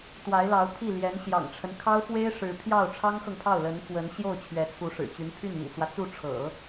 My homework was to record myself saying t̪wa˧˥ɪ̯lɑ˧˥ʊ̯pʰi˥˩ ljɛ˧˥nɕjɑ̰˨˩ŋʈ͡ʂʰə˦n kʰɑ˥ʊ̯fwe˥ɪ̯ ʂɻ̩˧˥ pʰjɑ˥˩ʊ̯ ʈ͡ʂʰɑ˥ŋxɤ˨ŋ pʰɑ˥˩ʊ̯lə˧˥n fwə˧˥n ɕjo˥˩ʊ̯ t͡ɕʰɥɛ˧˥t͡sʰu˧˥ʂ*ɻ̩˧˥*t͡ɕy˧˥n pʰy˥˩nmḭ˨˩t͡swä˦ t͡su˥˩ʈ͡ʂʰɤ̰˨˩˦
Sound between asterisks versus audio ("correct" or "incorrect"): incorrect